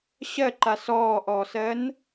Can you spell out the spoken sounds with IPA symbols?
ɕ ɜ ǃ a s ɔː ʔ ɔː s ɜ n

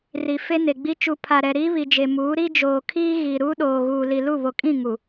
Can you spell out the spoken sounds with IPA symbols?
r i˨ f e˦ n e˨ ɡ͡b i˦ t͡ʃ u˨ pʰ a˨ ɾ ɛ˨ ɾ iː˦ β i˨ d͡ʒ e˨ m uː˨˦ ɾ i˦ d͡ʒ oː˨ kʰ iː˦ ɣ i˨ ɾ uː˦ ɗ oː˨ ɣ uː˨ l i˨ l u˦˨ β o˨ kʼ ĩ˦˨ ŋ u˨

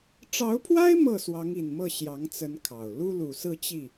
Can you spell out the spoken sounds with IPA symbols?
ʈ͡ʂ ɑ˧˥ ʊ̯ pʰ w a˥ ɪ̯ m ɤ˥˩ s w ɑ˧˥ ŋ i˨˩ n m ɤ˥˩ ɕ j ɑ˧˥ ŋ t͡s ə˧˥ n kʰ ɑ˨˩ ʊ̯ l u˥ l u˨˩ s ɹ̩˥˧ t͡ɕ i˥˩

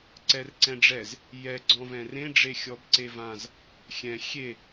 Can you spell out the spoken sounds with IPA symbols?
ǀ ɛ r ǀ ɛ̃ ɖ͡ʐ ɛ z | j ɛ ɡ͡ǀ ɔ̃ v ɛ̃ r ẽ ɖ͡ʐ e xʲ ɔ b ǀ e v ã z | xʲ ɛ̃ xʲ e

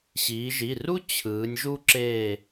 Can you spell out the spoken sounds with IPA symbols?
ɕ iː˩˧ ʒ i˩˧˩ r u˥ t͡ɕʰ ɯː˩˧ nʲ ʒ u˥ ǁ eː˦˨

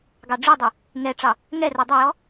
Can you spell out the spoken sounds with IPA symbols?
ɡ ɑ ɖ͡ʐ i dˤ e | ŋ ɛ ʈ͡ʂ ɑ | ŋ ɛ r o dˤ ə j ɔ

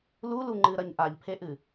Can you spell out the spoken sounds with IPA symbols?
l u l u ŋ͡ǃ ɨ ɾ ɐ ɲ ʔ a ʎ pʰ e ʔ ɨ

